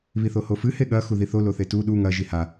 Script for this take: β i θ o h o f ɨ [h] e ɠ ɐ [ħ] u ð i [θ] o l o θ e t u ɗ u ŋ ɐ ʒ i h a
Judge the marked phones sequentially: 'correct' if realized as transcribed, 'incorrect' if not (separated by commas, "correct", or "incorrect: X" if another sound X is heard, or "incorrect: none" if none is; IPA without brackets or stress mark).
correct, incorrect: x, correct